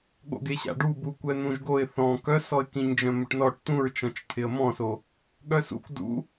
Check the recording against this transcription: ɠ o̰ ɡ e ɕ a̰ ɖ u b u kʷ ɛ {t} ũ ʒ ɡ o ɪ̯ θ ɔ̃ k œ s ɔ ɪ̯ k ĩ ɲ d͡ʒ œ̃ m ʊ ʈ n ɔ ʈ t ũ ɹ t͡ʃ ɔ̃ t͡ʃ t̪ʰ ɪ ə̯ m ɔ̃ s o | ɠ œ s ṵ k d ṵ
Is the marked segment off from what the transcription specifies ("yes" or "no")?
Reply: yes